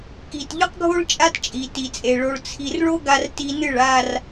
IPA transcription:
k i˨ t ʎ ɵ˦ q ɡʱ o˦ ɭ t͡ʃʼ a˦ t t͡ʃʼ i˨ t i˨ t͡sʼ e˨ ɭ o˨ ɭ t͡sʰ i˨ r ɭ o˦ ɡ a˦ r t i˦ n ɨ˦˨ ɭ a˨ r

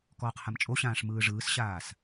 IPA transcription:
k ɔː q h a m t͡ʃʼ o ɕ ãː ʂ m ɯː ʐ ɯː s ɕ aː s

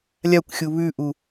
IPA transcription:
lʲ a kʷ xʲ u β ʉ ʔ u

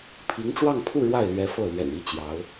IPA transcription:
pʰ i˧˥ ŋ ʈ͡ʂ w ɑ˥˧ ŋ pʰ u˥˧ ɻ w a˥˩ ɪ̯ l ɥ ɛ˧˥ f ɤ˥˩ l ɥ ɛ̰˨˩ n i˥ t͡ɕ j ɑ˧˥ ʊ̯

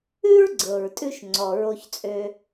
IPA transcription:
ʉ˥ ɹ ɡ͡ǀ ɤ˩ ɹ tʼ ʉ˧ ʃ ŋ͡ǀ ɔ˩ ɹ o˧ ç t͡sʼ ø˧

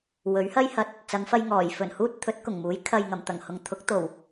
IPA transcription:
w ɵ˨˥ ɥ h ɐ˥ j h ɐ˧ t̚ | t͡s ɐ˨˧ ŋ f ɐ˧ j ŋ ɔː˨˩ j f ɵ˨˩ n h uː˧ t̚ t̪ʰ ɵ˨˥ t̚ k ʊ˨˩ ŋ m uː˨˥ j kʰ ɐ˨ j ŋ ɐ˨˩ m t̪ ɐ˨˩ ŋ h ʊ˨ ŋ t̪ʰ ʊ˨˥ k̚ t̪ o˨˩ w

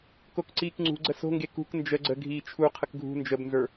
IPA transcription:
k o k ǀ iː k ŋ͡ǀ ṳ ɡ͡ǀ ə s o̤ ŋ ɡ e k ṳ k n d͡ʒ ə ɡ͡ǀ ə ɡʱ iː t͡ʃʰ u qʰ ə k ɡʱ ṳ n d͡ʒ ə b n z ə˞

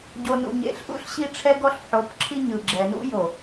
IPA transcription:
ɟ o˨ n ṵ˨ ɲ ḛ˨ ɬ ʔ ṵ˦ ɬ ɕ i˦ ʈ͡ʂʰ ɛ˦ ɡ ɔ˦ ɬ ħ o˨˦ p ǁʰ i˦ ɲ ɯ˨ ɡ͡ǁ ɛ˨ n ṵ˦ j o˨

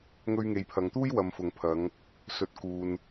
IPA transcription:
ŋ ɵ˧ ɥ ŋ e˨ j pʰ ɐ˨ ŋ t̪ uː˥ j w ɐ˨ m f ʊ˨ ŋ pʰ ɐ˨˧ ŋ | s ɵ˨ t̚ k uː˨ n

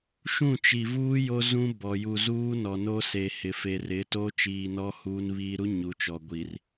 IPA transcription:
ʃ ũ˦˨ t͡ʃ i˨ v uː˦ j o˦ z ũ˦ b ɔ˨ j u˨ z uː˦ n ɔ˨ n o˦ s e˨ h ɪ˨ f e˨ r ɪ˨˦ t o˦ t͡ʃ iː˨ n ɔ˦ h uː˦ n β iː˦ ɾ u˦ ɲ u˨˦ t͡ʃ ɔ˨ ɡʷ i˨ r

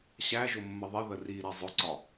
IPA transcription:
ɕ æ ʒ ʊ mː ə ðˤ ɪ ð ə r i ɾ ɛ zˤ ʊ ǀ ɒ

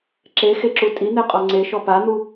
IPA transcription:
ǁ e x e ǁ u tʼ i n̪ e qʼ ɔ ŋ͡ǀ e ʃ ɔ p a n̪ u

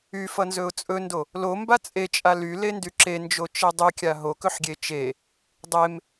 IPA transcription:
y f ʌ n z ɵ ʊ̯ t͡sʼ ɵ n d o | l o m b a t͡sʼ e t͡ʃʼ a l y l e n d y ǁ e n d͡ʒ o t͡ʃ e dˤ y kʲ a ɦ o k ɵ ħ ɡʲ e t͡ʃ e | dˤ e m

